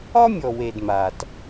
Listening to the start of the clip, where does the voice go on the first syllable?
high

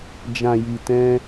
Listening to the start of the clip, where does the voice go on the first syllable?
low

